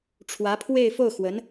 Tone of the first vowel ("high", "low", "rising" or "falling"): rising